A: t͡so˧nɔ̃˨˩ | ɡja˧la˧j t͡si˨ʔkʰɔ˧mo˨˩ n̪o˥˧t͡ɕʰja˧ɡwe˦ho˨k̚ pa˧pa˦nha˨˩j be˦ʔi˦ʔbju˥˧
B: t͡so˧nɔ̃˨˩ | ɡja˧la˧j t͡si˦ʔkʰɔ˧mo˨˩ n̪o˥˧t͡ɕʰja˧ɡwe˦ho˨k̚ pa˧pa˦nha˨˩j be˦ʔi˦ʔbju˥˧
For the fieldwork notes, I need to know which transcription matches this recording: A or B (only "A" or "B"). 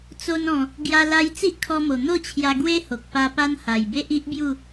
B